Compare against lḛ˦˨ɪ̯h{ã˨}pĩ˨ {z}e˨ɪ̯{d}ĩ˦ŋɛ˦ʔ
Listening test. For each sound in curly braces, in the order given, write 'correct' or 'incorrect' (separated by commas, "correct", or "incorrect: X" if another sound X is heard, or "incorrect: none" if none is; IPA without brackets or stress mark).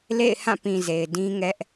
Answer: incorrect: ã˦˨, correct, correct